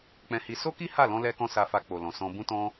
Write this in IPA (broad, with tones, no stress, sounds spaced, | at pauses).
k͡p ɛ̃˧ h i˧ s o˦ k i˦ h a˦˨ l ɔ̃˧ l ɛ˧ k ɔ̃˧ s a˧ f a˧ k͡p o˨ l ɔ̃˨ s ɔ̃˧ b ũ˦ t ɔ̃˦